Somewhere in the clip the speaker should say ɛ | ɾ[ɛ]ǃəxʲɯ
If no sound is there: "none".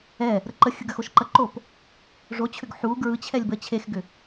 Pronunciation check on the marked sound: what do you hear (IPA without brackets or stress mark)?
ə